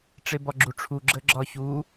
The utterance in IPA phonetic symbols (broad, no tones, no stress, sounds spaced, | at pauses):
ʈ͡ʂ e b ɒ ɡ͡ǁ u ʈ͡ʂʰ u ɡ͡ǁ ə ɡ͡ǁ ɒ ç u